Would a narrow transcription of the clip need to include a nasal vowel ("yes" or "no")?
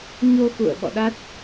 no